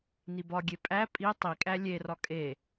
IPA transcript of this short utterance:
n i b ɒ ɡʲ e pʼ æ pʼ i tˤ i kʼ æ lʲ e r ɒ kʼ e

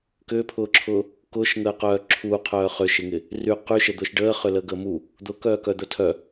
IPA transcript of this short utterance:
k ʏː pʰ ʊː ǁʰ ʊː | k ʊː ʃ ŋ əː q œː ǁʰ u qʰ œː χ ʏ ʃ ɪ ŋ ɪ | r y q y ʃ ə d̪ ʊː ʃ ɖ əː χ ʏ l əː ɡ əː m u | d̪ ʊ k œː k œ d̪ ə tʰ œ

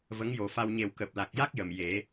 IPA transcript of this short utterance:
v ə˧˥ ŋ j o˨˩ f a˧ w ɲ e˨˩ w k əː˨˩ p̚ l a˨˩ k̚ j a˦˥ k̚ j ə˨˩ m j e˨˩˦

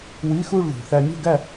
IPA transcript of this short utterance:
w i˧˥˧ x u˥˧ ɭ ð ṳ˨˩ θ æ˧ mʲ o̤˥˧ ɡ æ˥˧

